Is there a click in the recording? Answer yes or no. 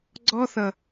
yes